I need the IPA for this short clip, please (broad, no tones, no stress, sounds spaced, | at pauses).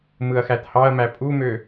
m ɯ ɐ̯ x æ t h ɑ ɐ̯ m æ pʼ u m ø